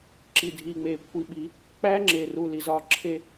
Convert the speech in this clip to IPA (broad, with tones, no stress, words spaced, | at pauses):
ǁi˨dʱiː˨ŋ͡meː˨ kʷʰi˨ɓi˨˦ | k͡pæː˦ŋ͡ǁeː˨ruː˨ li˨zɒː˦ ǁʰe˦